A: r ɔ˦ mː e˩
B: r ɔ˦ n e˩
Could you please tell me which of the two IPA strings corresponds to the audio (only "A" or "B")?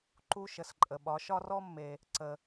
A